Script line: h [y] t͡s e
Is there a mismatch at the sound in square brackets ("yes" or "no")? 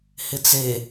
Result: yes